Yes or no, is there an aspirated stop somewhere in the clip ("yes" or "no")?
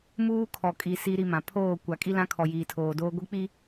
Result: yes